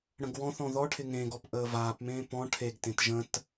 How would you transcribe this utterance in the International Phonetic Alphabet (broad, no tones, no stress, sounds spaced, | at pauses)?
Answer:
ɽ ə̃ ɡ w ɔ̃ θ ɔ̃ ð ɔ ʈʰ ɪ ŋ ẽ ɡ ɔ p ʔ əː v aː p m ẽː p ɔ̃ ʈʰ e ɡ t ẽ t ʒ ə̃ t